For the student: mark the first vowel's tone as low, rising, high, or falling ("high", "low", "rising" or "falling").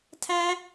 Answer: high